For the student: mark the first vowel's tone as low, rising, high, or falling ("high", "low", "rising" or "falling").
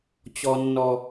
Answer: low